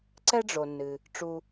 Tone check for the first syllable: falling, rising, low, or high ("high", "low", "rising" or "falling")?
high